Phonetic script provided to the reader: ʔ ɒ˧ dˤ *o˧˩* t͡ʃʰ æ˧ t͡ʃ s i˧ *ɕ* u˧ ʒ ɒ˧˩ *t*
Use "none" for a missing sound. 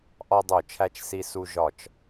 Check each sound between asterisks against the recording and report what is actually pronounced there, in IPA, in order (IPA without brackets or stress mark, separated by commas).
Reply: o˧˩, s, t͡ʃ